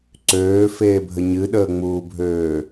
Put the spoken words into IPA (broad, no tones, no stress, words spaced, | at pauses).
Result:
ǀøːfeːbʱə ɲɨɗəːŋ͡muːbʱøː